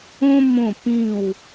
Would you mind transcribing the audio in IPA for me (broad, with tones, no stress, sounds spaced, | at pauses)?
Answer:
õ˦ m õ˥˩ p ĩ˥˩ w